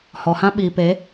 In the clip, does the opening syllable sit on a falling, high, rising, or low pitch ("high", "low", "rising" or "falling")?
low